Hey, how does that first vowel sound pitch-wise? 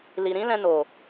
low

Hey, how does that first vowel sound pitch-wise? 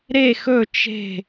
falling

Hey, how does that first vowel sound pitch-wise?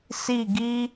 falling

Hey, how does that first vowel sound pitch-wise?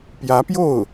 rising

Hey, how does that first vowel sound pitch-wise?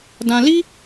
high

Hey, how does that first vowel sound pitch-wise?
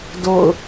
falling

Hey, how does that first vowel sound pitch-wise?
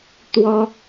high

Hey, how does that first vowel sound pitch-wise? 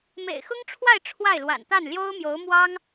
low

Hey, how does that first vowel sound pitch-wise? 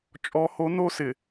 high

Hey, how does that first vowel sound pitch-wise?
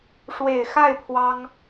low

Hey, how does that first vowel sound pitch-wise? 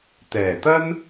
low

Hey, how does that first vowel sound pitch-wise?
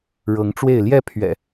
rising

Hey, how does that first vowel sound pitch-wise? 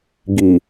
low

